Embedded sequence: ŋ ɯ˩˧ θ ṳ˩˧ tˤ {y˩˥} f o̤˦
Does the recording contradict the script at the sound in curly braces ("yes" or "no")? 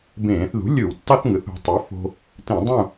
no